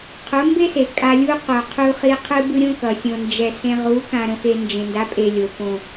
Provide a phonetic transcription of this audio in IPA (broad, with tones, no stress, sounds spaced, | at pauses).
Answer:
qʰ o˨˦ m b e˦ s e˨ kʼ a˧ lʲ u˦ q o˨ qʰ u˧ χ i˧ qʰ ɯ˦ b ɯ˦ ɾʲ õ˦ k ʌ˨ sʲ õ˨ n d͡ʒ ɛ˨ s ẽ˧ ʁ u˨˦ k ã˨ ɾ õ˨ x e˨ n d͡ʒ ẽ˨ n d a˨˦ pʼ e˨ lʲ o˨ p õ˨